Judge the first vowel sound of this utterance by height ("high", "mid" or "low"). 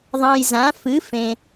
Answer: low